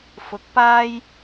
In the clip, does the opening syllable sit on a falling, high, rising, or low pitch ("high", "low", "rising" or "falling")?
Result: rising